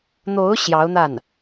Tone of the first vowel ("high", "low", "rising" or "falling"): rising